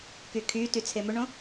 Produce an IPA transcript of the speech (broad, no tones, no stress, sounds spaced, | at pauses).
k y kʰ y t y t͡sʰ e m ʏ ɳ õ